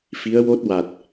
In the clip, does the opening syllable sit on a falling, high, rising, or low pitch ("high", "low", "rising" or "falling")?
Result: rising